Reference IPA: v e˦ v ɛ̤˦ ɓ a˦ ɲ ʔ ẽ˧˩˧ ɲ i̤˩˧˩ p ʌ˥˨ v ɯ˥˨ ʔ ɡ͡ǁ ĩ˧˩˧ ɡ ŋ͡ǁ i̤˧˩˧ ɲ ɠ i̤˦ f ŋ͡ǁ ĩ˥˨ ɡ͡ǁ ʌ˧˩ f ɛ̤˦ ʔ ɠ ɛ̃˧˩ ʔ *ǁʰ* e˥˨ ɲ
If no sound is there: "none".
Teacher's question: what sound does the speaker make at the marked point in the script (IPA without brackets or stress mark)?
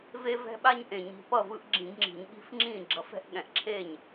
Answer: ǁʰ